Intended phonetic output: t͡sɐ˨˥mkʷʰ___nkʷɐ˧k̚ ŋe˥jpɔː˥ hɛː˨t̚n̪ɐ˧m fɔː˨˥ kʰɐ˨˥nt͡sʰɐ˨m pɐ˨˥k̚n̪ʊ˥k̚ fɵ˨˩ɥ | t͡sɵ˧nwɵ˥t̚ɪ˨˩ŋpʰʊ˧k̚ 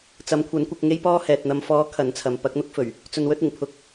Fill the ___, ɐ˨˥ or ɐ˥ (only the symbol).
ɐ˨˥